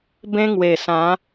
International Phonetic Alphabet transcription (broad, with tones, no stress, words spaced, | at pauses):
bẽ˦ŋwe˨˩sã˨˦